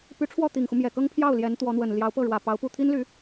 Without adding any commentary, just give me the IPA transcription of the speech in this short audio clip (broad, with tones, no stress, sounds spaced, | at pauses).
p y˧˥ ʈ͡ʂʰ w ɔ˥˩ t̪ i˨˩ ŋ x u˦ m j ɛ˨˩ k ɤ˥ ŋ pʰ j ɑ˥˩ ʊ̯ l j ɛ˧˥ n t̪ w ɔ˧˥ n̪ w ə˨˩ n l j ɑ˧˥ ʊ̯ p ɤ˥˩ ɻ w ä˨˩ p ɑ˧˥ ʊ̯ p u˥˩ t̪ʰ i˥ n l y˧˥